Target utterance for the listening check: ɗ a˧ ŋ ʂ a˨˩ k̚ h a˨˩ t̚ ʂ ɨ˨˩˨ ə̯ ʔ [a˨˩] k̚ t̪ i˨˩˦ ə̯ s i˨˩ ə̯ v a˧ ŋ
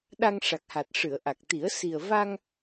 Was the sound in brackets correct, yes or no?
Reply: yes